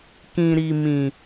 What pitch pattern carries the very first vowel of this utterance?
low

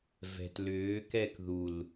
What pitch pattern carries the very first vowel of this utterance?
low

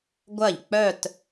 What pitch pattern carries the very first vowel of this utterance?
falling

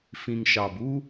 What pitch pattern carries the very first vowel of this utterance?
low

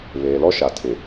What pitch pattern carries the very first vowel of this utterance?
low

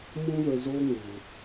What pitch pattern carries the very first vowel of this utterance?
high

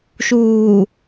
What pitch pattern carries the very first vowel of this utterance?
low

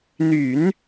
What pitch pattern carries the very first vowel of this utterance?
low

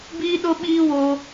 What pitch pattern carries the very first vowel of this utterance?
high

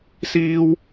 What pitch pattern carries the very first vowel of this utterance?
high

